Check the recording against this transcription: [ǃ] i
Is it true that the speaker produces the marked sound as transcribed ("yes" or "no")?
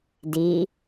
no